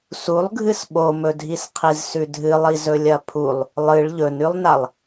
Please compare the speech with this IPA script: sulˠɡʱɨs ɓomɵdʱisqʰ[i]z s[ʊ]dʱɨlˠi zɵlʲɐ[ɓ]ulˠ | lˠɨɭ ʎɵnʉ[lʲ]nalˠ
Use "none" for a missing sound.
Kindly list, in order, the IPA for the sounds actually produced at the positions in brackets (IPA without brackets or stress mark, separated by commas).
i, ʉ, pʰ, lˠ